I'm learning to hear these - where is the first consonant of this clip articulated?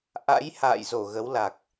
throat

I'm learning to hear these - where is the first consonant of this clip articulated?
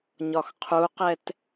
palate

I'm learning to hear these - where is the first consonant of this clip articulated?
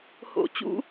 throat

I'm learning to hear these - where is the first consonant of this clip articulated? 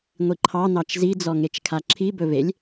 velum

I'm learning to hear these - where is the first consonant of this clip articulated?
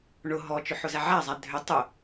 retroflex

